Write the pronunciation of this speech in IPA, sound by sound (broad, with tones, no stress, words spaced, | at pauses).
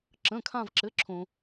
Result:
ǁə̃˧˥˧kʰã˥˧vǁɘ˧˥˧ǁʰõ˧